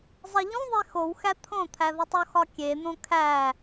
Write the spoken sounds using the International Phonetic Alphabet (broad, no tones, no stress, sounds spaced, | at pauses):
zˤ i ʎ ũ ðˤ e x o w x æ t̪ʰ õ t̪ʰ æ ð ɒ tˤ o x ɒ kʲ e n̪ õ kʰ æ